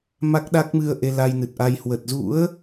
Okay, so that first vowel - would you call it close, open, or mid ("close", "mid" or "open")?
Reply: open